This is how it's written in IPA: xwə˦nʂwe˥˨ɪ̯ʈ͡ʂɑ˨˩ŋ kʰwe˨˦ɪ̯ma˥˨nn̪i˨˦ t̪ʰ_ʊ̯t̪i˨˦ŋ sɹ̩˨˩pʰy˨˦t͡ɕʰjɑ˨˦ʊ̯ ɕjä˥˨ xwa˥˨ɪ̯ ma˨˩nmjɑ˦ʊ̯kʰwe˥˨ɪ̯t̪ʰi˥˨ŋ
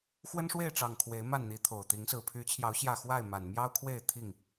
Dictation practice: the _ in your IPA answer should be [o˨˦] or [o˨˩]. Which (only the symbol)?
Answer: o˨˩